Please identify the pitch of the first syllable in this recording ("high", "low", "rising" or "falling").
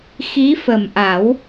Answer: rising